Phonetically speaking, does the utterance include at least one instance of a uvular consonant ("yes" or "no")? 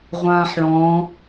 yes